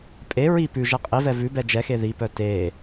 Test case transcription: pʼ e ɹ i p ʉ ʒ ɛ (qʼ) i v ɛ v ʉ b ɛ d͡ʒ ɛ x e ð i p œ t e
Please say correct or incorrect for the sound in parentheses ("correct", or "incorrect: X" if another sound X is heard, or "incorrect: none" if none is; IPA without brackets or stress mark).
correct